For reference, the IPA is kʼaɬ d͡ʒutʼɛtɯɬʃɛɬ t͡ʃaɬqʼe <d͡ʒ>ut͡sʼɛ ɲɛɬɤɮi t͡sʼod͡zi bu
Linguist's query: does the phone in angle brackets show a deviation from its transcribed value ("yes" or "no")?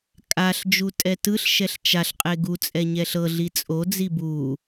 yes